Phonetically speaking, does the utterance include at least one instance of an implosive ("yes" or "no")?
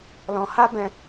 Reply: no